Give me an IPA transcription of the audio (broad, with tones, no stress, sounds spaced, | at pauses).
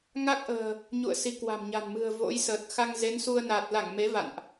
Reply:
ŋ a˦˥ k̚ ʔ ə̤ː˨˩ | ɲ ṵ˧˨ ə̯ s i˨˦ k w a̤˨˩ m ɲ a̤˨˩ n m ɨ̤˨˩ ə̯ v o̰˧˥ j s əː˨˩ t̚ x a˧ ŋ z e˨˦ n s u˧ ə̯ n a˨˩ t̚ l a˧˩ ŋ m e˨˦ v a̰˧˨ n ʔ